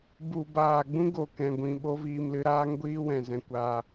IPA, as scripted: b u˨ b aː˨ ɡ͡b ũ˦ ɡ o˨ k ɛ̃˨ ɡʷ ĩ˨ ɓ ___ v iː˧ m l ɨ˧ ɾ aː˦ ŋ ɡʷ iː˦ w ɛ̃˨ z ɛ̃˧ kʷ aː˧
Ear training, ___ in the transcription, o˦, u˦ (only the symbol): o˦